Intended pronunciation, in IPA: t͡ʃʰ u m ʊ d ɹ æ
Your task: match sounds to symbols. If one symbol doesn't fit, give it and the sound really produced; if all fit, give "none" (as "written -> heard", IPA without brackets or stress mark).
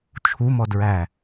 ʊ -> ɔ